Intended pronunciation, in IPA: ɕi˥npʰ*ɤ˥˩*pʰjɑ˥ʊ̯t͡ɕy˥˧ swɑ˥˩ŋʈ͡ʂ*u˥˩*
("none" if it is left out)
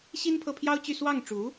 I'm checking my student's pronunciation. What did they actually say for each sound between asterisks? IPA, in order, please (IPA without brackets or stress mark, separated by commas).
ɤ˥˩, u˧˥